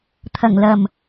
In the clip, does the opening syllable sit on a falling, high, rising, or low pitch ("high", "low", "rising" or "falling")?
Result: low